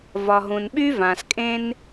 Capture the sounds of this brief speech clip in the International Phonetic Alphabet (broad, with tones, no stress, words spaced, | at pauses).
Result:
vɒ˩ɦũ˩nɓy˥ vã˩skʼẽ˦n